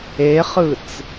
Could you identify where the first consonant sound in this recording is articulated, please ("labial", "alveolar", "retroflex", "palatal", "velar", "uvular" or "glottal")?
uvular